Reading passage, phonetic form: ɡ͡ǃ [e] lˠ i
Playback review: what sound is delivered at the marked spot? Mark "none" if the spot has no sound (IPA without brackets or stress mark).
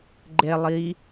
e